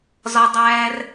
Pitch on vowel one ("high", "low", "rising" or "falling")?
low